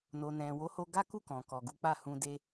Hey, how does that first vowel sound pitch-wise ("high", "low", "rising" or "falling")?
low